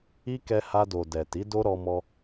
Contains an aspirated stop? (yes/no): no